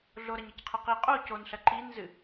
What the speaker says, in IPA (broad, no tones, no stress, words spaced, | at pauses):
ɮoɾɐɲɨcqʰɐ qi qʼo conɬɐ ǃinzɨ